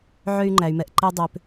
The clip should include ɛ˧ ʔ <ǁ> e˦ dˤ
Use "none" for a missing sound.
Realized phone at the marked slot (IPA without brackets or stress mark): ǃ